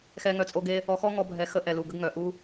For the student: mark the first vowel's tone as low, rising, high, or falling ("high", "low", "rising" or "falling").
high